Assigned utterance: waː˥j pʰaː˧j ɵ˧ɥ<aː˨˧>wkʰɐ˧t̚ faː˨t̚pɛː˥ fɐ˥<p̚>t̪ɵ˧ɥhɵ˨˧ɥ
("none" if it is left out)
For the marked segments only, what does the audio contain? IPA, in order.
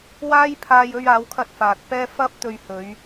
aː˨˧, p̚

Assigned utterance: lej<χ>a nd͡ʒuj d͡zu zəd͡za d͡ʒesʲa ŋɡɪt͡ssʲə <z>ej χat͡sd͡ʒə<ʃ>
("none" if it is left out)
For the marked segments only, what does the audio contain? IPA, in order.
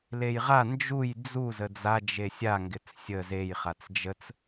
ʁ, z, t͡s

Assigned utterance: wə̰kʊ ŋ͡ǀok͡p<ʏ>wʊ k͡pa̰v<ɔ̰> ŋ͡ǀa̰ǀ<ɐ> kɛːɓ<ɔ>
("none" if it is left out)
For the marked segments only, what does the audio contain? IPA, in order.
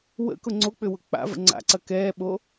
ʏ, ə̰, ɐ, o

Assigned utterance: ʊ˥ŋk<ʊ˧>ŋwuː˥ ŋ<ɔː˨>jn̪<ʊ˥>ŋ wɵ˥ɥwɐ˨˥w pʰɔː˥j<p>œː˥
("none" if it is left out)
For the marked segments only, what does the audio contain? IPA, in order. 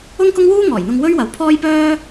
ʊ˥, ɔː˨˩, ʊ˧, p

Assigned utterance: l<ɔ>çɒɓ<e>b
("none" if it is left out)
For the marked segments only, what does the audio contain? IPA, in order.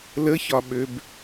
ə, ø

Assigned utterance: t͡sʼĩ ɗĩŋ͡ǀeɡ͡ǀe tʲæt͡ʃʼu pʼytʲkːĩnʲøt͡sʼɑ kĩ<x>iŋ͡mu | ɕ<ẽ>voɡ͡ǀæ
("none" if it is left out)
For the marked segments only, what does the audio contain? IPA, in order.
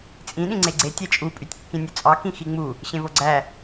x, ẽ

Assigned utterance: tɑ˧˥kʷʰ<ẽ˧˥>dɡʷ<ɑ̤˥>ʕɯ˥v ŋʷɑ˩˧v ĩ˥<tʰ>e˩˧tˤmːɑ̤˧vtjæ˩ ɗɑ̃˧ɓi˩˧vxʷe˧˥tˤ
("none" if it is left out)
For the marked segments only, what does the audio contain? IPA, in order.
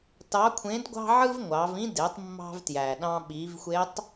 ẽ˧˥, ɑ̤˥, d

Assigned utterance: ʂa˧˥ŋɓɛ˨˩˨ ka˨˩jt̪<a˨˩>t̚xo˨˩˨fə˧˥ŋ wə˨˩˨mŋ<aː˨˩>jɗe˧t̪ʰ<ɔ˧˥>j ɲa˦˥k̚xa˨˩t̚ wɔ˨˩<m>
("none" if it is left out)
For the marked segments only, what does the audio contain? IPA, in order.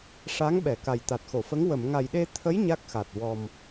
a˨˩, a˨˩, ə˧˥, m

